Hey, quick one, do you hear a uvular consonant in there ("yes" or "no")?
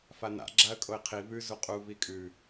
yes